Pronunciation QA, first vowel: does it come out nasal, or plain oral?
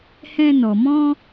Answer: nasal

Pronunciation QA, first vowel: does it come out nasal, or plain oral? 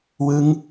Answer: oral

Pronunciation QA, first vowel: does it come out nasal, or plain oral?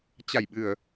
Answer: oral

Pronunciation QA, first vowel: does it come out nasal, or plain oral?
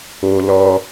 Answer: oral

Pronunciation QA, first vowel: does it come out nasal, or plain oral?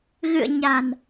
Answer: oral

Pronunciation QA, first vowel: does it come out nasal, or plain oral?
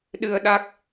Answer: oral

